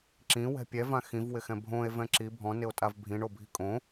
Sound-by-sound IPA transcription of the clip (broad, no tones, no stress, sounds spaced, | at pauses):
ǁ ĩ w ɛ̤ pʲ ɛ v ã x ĩ v w ɪ x ɛ̃ bʱ õ e̯ v ɛ̃ ǁ i bʱ ɔ̃ n ɪ o̯ tʼ a v bʱ ĩ ɳ o bʱ i̤ kʼ õ